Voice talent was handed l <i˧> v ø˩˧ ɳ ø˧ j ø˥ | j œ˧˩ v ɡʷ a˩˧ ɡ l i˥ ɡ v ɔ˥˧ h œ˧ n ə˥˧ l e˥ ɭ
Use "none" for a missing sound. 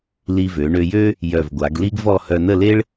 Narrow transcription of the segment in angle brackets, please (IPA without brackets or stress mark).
i˧